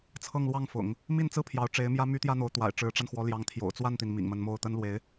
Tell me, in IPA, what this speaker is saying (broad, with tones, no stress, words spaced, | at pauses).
t͡sʰɤ˥˧ŋlwɑ˥˩ŋfʊ̰˨˩˦ŋ | mi˥˧nt͡sɹ̩˥˩pʰjɑ˧˥ʊ̯ ʈ͡ʂe˧˥ɪ̯mjä˥ my˥t̪jä˥n̪o˧˥ʊ̯ t̪wa̰˨˩ɪ̯ʈ͡ʂɻ̩˧˥ʈ͡ʂa˧nxwɔ˧˥ ljɑ˧˥ŋ t̪ʰjo̰˨˩ʊ̯t͡swa˥˩nt̪i˩n mḭ˨˩ŋmə˧˥nmo˥˩ʊ̯ t̪ə˥nlwe˧˥ɪ̯